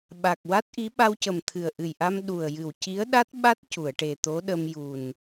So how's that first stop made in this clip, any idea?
implosive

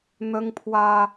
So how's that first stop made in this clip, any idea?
aspirated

